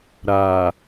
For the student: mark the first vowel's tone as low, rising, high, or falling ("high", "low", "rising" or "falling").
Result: low